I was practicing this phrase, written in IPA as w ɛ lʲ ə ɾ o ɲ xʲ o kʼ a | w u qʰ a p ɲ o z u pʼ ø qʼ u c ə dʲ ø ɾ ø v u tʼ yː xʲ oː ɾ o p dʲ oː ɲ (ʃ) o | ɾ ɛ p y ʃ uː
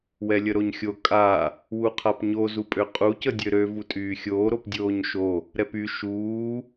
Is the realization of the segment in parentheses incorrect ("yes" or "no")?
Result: no